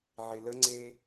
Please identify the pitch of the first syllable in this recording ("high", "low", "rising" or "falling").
low